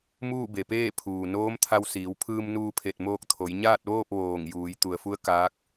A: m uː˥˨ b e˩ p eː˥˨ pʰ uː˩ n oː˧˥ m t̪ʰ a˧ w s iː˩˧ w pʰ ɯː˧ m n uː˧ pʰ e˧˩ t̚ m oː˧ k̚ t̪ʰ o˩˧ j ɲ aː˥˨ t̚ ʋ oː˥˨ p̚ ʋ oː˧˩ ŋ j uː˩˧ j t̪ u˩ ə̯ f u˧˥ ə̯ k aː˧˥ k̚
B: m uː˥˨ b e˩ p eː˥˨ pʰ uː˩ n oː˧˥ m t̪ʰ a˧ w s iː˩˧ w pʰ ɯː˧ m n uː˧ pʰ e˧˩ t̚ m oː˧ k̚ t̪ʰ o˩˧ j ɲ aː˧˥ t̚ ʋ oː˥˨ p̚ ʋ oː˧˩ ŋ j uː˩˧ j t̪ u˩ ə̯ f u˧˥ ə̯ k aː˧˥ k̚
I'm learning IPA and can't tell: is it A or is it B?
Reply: A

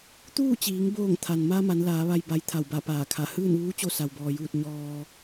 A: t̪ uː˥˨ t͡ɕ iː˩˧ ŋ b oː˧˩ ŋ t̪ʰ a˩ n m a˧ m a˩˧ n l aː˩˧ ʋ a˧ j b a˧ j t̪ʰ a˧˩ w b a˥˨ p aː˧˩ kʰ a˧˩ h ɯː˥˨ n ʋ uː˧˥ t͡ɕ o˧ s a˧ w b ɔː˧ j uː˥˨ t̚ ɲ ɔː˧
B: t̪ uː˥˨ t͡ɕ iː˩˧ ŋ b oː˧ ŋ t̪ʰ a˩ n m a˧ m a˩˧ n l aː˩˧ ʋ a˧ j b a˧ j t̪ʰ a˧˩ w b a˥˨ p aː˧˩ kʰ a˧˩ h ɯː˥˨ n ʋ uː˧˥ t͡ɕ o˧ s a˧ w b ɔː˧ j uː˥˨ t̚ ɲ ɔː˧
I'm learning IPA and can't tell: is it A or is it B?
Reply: A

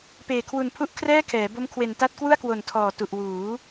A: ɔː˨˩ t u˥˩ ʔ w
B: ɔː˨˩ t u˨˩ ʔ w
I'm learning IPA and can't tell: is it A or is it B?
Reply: B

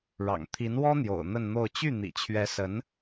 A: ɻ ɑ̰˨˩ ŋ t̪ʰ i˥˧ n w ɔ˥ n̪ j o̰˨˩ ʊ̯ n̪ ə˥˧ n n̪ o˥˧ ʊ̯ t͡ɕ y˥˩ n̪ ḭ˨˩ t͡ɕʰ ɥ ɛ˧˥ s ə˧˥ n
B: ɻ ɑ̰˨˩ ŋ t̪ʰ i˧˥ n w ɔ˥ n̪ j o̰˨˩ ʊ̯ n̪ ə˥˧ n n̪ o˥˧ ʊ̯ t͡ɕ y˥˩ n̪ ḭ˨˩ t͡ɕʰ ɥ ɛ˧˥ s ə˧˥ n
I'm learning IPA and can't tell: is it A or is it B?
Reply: B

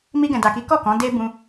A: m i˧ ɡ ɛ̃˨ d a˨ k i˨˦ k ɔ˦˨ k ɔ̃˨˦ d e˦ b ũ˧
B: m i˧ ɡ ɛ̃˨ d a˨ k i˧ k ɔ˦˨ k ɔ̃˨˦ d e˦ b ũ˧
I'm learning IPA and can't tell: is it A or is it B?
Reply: A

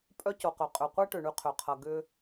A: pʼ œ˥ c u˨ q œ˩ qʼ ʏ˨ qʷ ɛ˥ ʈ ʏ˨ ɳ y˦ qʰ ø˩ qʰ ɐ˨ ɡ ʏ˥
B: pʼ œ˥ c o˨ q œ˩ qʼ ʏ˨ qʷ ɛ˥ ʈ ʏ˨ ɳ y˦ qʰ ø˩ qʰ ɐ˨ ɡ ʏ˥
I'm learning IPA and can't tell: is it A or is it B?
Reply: B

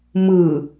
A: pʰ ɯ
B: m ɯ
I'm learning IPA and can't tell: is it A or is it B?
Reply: B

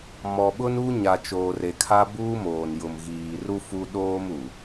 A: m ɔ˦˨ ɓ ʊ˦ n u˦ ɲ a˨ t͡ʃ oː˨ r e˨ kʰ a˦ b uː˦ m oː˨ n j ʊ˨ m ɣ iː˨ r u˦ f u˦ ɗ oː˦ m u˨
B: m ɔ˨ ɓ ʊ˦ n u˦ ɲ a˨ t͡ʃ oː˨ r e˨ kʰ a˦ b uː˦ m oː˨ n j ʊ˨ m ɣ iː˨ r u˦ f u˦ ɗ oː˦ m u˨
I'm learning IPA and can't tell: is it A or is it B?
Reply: B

